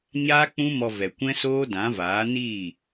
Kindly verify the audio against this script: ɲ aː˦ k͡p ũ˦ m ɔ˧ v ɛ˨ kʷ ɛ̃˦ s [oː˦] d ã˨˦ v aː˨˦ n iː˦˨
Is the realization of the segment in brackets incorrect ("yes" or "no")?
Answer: no